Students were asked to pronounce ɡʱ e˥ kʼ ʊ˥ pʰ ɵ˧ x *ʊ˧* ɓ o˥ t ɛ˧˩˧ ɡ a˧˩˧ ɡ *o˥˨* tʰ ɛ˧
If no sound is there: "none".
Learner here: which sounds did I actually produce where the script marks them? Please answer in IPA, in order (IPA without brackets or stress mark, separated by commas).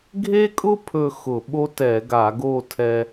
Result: ʊ˧˩˧, o˥˨